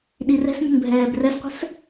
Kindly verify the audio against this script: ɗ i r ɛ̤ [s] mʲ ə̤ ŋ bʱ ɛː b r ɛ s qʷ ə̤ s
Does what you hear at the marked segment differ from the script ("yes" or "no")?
no